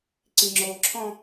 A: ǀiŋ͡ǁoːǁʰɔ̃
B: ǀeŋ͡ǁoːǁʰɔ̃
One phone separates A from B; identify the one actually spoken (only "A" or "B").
A